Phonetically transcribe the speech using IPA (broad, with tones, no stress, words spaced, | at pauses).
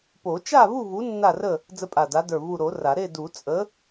po˨˩˦t͡ʃa˥˨vu˥˨vu˨˥ nːa˥˨rə˥˨ | d͡zə˦pʼa˧˩da˨˥də˞˧˩ vu˧˩ɾo˨˩˦ ra˨˩˦ ɾe˥˨du˨˩˦t͡sʼə˨˥